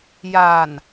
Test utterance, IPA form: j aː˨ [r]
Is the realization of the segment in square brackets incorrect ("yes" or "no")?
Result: yes